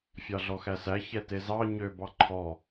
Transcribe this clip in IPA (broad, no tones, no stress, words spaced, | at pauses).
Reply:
fʲɑɮɔxæsæ çɛtezɑ ɲø bɑǃʰɔ